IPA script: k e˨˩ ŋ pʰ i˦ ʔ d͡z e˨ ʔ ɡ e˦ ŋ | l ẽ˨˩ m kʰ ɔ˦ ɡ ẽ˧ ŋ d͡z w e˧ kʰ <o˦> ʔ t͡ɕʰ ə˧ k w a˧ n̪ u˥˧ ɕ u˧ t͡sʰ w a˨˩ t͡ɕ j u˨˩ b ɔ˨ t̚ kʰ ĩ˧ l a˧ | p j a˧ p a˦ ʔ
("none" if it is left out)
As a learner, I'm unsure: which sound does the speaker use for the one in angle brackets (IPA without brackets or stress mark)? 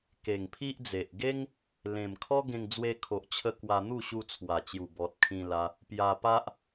o˨